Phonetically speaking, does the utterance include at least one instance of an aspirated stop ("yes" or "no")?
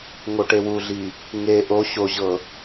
no